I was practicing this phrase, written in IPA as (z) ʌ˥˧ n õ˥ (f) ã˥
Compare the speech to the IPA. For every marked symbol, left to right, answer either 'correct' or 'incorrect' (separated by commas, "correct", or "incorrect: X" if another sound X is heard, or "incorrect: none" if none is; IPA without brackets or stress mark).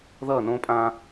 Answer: incorrect: ð, incorrect: pʼ